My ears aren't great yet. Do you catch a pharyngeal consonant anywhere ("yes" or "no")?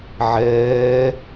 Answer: yes